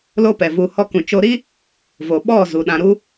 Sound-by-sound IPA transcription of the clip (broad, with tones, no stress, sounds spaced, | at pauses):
l o˦ p ɛ˨ v u˧ h ɔ˦ k ũ˨ t͡ʃ o˧ ɾ i˦ | v o˨ ɓ ɔ˦˨ z u˨ ɗ ã˧ ɾ u˦